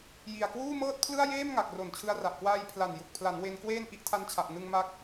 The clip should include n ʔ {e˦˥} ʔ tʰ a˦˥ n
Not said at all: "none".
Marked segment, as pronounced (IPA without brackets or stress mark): i˦˥